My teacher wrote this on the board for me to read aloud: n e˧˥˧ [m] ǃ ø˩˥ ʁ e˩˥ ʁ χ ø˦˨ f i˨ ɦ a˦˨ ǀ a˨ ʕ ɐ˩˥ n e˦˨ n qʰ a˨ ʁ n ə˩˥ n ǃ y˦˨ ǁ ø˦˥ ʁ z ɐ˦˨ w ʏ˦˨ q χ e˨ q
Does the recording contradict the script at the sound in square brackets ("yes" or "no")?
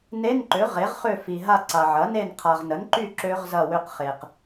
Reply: yes